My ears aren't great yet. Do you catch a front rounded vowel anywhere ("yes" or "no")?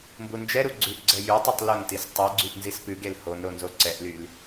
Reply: yes